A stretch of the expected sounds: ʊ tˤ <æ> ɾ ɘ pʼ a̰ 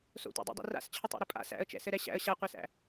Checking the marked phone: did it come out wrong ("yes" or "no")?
yes